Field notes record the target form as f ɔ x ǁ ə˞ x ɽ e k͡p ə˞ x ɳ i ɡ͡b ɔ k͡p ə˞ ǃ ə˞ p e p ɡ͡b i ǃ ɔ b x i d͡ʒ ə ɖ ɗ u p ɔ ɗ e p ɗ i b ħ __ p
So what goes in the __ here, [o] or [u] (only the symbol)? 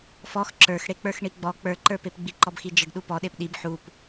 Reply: u